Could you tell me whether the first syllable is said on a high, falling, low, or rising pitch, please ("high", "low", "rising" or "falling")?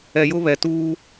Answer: low